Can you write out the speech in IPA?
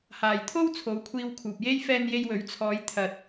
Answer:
haː˨jt̪ʰo˥w t͡sʰo˨˧wkʷʰiː˧wkʰuː˨p̚je˥j fɛː˧nje˧jwɵ˨˥ɥt͡sʰɔː˨˧j t̪ʰɐ˨t̚

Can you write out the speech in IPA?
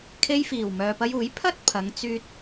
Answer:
kʰe˧jfiː˨˩w mœː˨pɐ˧juː˨˥j pʰɐ˥t̚pʰɐ˨˧ŋ t͡syː˥t̚

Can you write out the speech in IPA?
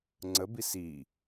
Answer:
ŋ͡ǀəbis i

